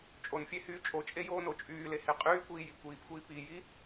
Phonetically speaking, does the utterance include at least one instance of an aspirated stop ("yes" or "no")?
no